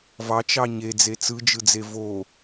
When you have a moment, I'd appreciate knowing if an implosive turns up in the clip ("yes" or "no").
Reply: no